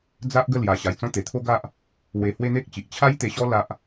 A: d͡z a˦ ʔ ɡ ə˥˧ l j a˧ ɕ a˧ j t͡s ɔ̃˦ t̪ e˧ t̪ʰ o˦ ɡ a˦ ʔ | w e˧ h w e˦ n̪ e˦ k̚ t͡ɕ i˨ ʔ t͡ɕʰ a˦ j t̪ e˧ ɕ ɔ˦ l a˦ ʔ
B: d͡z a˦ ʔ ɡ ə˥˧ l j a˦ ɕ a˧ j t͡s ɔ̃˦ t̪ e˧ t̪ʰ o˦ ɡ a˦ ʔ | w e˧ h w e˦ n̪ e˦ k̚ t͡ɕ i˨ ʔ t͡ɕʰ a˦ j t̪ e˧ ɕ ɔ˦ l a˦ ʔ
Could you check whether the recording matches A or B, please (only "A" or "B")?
A